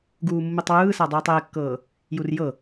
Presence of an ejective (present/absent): absent